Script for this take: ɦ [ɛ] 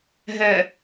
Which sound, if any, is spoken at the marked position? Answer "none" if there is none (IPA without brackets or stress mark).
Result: ɛ